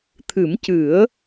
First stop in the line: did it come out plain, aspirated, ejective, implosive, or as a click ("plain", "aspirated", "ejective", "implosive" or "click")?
aspirated